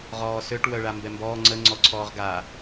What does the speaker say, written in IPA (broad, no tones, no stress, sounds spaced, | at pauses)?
ʁ ɔː s ø ʈ w œ ɭ a m b ɛ m b ɔː ŋ͡ǀ ə ŋ͡ǀ ɔ ǀʰ ɔː ʁ ɡ a